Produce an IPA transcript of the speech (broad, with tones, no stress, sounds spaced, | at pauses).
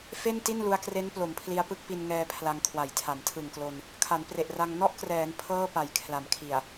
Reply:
f e˥˩ n t i˥˩ n l u˧ a̯ k r e˦˥ n p l o˩˦ m pʰ l i˧ a̯ p ɯ˥˩ k̚ p i˧ n ŋ ɛː˧ pʰ l a˧ ŋ kʰ w a˨˩ j tʰ a˨˩ m tʰ ɯ˨˩ ŋ k l o˧ n | kʰ a˩˦ n p r e˨˩ ʔ r a˧ ŋ n ɔ˥˩ ʔ k r ɛː˩˦ n pʰ ɤː˥˩ p a˨˩ j kʰ l a˩˦ m kʰ i˨˩ a̯